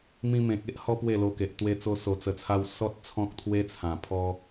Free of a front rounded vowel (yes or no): yes